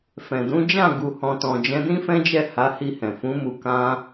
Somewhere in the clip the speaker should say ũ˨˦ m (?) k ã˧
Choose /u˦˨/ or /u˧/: u˧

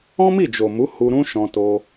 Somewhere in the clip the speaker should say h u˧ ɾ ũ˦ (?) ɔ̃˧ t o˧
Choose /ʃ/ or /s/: ʃ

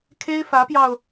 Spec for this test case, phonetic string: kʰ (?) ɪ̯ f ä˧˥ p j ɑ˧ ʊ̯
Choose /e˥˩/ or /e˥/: e˥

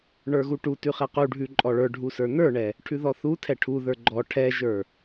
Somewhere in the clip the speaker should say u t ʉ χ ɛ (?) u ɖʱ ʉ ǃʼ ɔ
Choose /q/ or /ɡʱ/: q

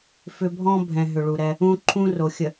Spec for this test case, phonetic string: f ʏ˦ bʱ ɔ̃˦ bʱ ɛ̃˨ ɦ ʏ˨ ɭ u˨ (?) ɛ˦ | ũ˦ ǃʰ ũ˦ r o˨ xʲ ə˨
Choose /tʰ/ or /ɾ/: ɾ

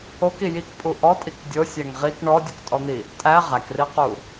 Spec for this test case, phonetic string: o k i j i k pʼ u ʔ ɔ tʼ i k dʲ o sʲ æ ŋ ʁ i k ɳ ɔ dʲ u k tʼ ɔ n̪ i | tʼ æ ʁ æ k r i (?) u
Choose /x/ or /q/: q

